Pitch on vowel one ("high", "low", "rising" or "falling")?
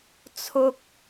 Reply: high